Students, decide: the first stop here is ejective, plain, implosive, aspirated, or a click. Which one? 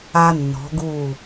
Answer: plain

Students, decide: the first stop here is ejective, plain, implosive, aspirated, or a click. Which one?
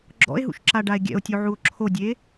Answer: click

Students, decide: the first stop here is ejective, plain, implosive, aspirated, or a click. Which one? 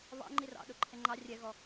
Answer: click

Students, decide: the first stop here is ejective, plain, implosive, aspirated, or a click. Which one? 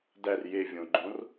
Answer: plain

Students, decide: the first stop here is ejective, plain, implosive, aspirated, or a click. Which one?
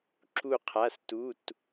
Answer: click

